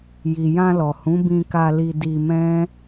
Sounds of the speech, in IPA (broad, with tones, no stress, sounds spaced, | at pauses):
j i˨ j ã˧ l ɔ˨ h ũ˨˦ b ĩ˧ k a˧ l i˧ d i˧ m ɛ̃˦